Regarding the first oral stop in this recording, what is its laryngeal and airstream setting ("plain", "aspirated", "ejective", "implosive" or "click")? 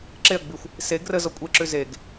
click